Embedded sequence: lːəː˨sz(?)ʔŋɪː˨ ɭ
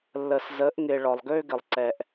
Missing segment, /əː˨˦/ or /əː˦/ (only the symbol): əː˨˦